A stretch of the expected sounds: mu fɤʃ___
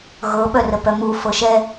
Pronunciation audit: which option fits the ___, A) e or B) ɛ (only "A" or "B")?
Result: B